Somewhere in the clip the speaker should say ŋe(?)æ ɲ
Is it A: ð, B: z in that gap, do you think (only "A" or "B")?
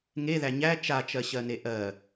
A